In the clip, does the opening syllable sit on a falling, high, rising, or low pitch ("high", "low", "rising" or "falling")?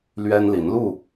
high